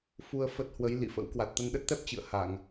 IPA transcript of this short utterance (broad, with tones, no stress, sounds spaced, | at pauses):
f u˧ ə̯ f ə˦˥ t̚ h w ə˨˦ j l ḭ˧˨ f ə̰˧˥ w k w a˨˩ t̚ t̪ ə˧ n ɗ ə˦˥ t̚ t̪ ɛ˦˥ p̚ t͡ɕ ɨ̰˧˨ ə̯ h a˧˩˨ ŋ